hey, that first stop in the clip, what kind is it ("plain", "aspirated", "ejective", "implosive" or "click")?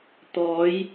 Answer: plain